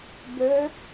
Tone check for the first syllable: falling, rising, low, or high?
rising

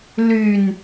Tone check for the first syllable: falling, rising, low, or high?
low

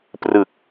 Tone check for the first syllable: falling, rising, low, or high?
low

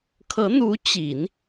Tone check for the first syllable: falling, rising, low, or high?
rising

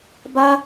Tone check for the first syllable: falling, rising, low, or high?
high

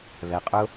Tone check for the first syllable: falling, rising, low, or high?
low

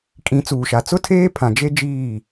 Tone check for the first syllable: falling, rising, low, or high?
rising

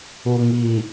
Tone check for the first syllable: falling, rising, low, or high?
low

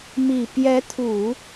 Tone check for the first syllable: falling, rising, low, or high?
low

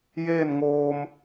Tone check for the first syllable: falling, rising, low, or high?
falling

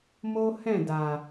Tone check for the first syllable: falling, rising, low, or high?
high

